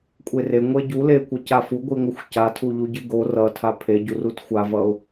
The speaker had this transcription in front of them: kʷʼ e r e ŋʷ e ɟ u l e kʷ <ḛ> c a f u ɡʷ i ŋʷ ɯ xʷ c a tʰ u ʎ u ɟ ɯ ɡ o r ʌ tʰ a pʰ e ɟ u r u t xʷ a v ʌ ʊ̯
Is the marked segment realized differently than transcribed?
yes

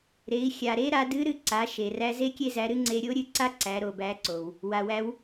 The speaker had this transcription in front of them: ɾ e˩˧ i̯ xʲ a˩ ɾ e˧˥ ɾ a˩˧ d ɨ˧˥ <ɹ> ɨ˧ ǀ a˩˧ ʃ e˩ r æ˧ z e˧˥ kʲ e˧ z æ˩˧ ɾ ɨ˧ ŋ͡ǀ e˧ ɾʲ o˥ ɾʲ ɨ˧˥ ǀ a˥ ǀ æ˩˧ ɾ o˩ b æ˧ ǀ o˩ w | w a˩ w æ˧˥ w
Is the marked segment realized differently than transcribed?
yes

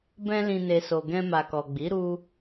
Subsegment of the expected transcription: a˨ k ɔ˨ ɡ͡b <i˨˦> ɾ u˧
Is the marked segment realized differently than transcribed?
no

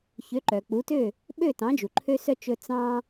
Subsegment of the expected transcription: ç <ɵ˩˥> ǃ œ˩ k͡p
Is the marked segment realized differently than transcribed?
yes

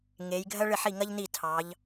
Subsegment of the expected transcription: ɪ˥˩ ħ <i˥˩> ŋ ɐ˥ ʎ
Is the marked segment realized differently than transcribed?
no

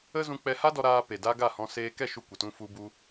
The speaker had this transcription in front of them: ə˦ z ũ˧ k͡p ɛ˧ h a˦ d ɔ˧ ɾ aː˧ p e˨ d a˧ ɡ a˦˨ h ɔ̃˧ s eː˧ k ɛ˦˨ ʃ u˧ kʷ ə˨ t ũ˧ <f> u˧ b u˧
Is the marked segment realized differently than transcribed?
no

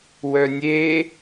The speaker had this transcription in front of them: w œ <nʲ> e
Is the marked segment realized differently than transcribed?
no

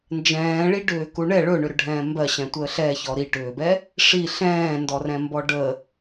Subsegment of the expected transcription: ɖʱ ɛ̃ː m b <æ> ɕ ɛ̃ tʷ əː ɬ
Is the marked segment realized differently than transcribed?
yes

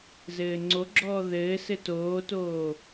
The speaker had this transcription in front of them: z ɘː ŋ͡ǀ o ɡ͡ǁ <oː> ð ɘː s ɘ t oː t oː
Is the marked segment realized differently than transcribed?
yes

